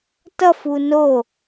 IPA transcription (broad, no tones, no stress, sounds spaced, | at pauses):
t ʌ f u n o